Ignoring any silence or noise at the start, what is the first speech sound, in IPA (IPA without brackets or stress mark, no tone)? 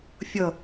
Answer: fʲ